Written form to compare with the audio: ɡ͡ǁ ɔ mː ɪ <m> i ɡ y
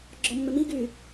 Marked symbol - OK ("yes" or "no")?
yes